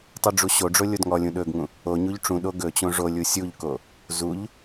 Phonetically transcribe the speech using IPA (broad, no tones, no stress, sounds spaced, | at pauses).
tˤ u ɖ͡ʐ u ɕ o ɖ͡ʐ o lʲ o d ŋ ɔ lʲ ũ ɗ ɵ ɡ ŋ ũ | o ɲ u ʎ ʈ͡ʂ ũ ɗ o ɡ ɵ t͡ɕ õ ʐ o lʲ u sʲ u ʎ k o | z u ʎ